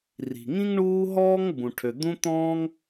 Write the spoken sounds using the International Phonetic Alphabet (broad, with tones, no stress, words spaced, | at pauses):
ri̤˩ŋĩ˥ŋ ɳuː˥ ɦɔː˥ŋbũ˩ʈʰø˩ d̪ũ˥t̪ɔ̃ː˥ŋ